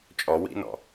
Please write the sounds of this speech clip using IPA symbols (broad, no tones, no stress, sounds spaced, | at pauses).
t͡ʃʼ ɔ w ḭ n ɔ̰